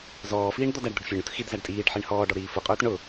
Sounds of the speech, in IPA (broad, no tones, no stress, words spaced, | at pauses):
zɔːfiːɳ d̪ɔdæɖd̪ʊɖ fʲɑɳut xidzæɖ tʼiːɖħiɳ hɔːɖɔ ɾiːfʊqʼʊːt ɳʊ